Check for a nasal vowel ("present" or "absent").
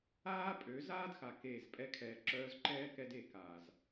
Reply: absent